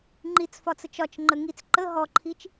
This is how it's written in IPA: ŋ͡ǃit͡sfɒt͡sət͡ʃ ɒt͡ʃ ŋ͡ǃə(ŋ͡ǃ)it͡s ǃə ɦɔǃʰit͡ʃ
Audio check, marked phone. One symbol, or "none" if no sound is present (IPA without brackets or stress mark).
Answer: ŋ